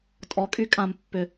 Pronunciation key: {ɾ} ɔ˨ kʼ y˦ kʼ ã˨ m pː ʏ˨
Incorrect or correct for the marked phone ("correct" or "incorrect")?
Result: incorrect